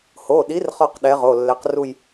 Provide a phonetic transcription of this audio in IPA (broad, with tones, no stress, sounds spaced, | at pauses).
h o˩˧˩ ɗ i˨˥ r χ ɒ˥˧ q ɗ ɛ˨˥ ʁ o˩˧˩ lː ɛ˨˥ q r u˥˧ j